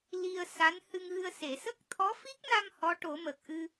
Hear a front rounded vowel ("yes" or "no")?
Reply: no